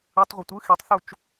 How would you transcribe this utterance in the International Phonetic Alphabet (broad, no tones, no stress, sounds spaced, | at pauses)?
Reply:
ɯ tˤ ʁʷ ʌ tʷ ɯ x i tˤ θ u t͡ʃ